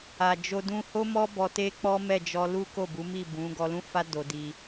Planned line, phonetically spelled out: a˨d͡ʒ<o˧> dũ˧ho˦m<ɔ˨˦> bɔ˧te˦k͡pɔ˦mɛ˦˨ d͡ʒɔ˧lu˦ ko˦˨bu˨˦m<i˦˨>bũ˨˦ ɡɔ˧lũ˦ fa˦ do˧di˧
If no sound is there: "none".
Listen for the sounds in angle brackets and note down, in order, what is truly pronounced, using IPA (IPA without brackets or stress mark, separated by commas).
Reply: o˧, ɔ˦, i˦˨